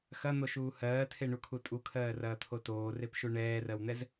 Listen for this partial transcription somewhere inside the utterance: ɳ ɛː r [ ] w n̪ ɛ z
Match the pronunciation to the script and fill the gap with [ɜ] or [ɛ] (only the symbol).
ɜ